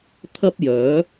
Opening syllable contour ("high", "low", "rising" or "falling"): high